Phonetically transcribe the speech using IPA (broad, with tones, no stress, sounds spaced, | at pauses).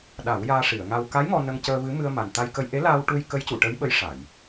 ɗ a˨˩˦ w j aː˧ ʂ i˨˩˨ ə̯ ŋ a˧ w k a˧˥ j ŋ ɔ˧ n ə˧ ŋ c əː˧ v ɨ˧˥ m ɨ˧ ə̯ m a˨˩ n t̪ a˧ j k ə˧ j ʔ e˧˥ l a˧ w ʈ u˧ j k ə˧˥ j c u˨˩˨ ʈ ə˧˥ j ɓ ə˧˥ j ʂ a˨˩˨ j